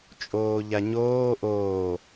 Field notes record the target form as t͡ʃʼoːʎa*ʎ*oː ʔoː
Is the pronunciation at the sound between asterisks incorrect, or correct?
incorrect